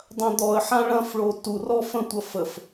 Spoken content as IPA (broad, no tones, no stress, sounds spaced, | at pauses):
dˤ ɐ̃ d̪ ɔ ə̯ ħ ã ɭ ɐ̃ f ɭ o t u r ɔ f ə̃ tʷ ɐ f ə f